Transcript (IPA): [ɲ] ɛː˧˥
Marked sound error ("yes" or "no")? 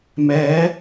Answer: yes